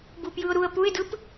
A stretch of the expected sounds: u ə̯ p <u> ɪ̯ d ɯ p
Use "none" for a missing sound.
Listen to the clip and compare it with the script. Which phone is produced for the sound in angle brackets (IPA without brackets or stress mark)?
u